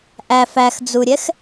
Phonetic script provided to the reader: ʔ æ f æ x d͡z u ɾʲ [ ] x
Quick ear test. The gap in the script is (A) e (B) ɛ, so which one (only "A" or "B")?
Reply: B